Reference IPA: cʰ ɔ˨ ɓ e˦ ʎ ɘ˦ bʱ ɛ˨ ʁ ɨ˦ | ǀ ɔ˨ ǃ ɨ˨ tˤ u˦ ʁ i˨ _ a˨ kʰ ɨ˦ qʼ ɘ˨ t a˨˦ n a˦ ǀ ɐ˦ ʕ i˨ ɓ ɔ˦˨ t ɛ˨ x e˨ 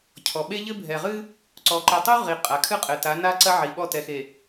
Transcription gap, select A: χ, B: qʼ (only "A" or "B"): B